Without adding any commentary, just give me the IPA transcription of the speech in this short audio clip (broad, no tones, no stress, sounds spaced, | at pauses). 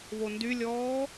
β o n d y lʲ ɔː